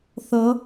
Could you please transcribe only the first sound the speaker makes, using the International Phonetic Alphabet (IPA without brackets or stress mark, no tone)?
θ